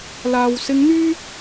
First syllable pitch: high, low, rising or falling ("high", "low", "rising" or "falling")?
low